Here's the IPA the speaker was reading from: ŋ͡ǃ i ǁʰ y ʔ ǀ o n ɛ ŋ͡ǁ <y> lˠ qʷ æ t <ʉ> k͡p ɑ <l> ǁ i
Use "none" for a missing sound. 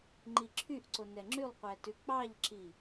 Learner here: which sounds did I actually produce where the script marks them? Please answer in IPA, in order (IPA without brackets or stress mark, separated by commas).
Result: y, ʉ, ʎ